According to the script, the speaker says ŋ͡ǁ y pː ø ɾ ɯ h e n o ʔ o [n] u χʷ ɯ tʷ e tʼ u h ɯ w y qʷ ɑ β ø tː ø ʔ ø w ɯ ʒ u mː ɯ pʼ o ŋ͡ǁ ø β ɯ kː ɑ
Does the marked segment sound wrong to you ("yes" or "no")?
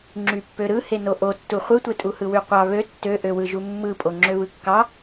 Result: yes